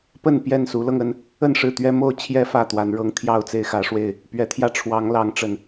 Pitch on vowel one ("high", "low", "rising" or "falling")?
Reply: falling